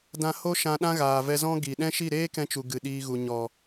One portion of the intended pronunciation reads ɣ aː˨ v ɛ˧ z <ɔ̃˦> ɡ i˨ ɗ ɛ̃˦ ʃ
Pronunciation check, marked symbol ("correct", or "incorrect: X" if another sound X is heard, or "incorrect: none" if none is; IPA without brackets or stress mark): correct